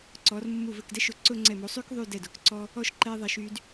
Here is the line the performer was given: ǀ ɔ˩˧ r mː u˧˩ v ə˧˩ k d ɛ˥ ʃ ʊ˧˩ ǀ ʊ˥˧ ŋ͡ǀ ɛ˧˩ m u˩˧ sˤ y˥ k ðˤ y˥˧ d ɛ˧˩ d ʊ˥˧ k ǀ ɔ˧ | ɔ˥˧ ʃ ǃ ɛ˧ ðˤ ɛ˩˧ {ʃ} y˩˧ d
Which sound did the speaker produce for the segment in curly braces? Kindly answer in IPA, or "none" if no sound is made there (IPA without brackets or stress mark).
ʃ